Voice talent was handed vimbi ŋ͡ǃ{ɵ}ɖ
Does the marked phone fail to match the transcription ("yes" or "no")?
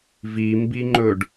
no